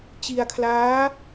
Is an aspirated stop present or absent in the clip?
present